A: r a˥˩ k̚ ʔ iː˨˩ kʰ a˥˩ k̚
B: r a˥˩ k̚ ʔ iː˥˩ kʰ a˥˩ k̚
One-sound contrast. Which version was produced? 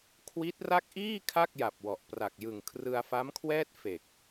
B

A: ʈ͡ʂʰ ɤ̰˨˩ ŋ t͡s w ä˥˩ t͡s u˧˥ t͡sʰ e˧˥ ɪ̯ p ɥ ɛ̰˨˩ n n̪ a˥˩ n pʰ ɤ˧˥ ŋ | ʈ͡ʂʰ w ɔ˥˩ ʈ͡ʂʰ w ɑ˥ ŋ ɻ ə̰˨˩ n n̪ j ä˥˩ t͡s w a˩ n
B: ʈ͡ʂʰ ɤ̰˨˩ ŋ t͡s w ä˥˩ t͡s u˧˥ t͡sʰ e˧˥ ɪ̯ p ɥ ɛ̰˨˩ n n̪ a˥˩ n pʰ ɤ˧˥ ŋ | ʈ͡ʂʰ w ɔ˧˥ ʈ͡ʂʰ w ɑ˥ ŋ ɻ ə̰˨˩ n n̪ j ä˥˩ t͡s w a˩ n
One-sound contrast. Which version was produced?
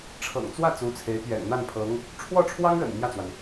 A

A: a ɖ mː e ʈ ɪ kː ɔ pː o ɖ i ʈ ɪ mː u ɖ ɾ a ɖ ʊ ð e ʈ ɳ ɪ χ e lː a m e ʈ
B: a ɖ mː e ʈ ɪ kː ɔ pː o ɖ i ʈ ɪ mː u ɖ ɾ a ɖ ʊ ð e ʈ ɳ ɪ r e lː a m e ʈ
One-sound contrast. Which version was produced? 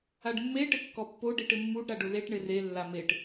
B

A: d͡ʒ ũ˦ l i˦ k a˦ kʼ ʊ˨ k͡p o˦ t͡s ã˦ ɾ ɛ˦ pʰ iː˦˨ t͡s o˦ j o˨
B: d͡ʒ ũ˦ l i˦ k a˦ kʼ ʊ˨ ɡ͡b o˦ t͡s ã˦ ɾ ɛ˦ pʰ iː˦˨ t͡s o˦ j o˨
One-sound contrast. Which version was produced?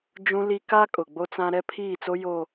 B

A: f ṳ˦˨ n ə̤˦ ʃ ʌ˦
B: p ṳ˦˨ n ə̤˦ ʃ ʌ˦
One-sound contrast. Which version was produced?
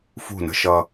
A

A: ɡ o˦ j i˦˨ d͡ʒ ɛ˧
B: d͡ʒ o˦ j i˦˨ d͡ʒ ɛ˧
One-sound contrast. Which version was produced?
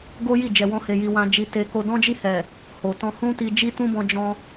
A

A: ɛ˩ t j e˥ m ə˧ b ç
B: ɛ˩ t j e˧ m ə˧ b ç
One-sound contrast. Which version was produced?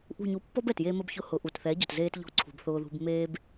B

